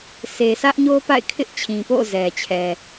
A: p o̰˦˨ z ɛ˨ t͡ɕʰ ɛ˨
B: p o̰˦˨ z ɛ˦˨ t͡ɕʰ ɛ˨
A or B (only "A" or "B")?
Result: A